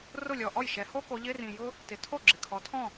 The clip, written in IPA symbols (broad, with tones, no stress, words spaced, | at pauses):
rʊ˥˩lʲɔ˩ ʔɔ˥˩jʃɛ˩˧ ho˥ko˩˧ʎɪ˧˥˧ rĩ˩jʊ˥ | tɪ˩˧tʰo˥˩ ɡ͡ǁɪ˩kʰɔ˩˧tʰɔ̃˥˩